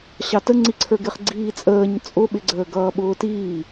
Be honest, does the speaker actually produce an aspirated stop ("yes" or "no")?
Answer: yes